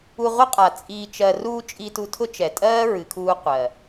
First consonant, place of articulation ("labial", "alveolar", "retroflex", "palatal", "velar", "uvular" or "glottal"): uvular